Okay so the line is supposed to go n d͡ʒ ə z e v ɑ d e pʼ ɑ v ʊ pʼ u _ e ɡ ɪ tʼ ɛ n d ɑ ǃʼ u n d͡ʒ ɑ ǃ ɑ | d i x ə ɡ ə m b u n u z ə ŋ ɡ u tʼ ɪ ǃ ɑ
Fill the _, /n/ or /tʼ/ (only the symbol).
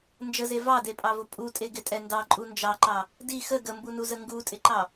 tʼ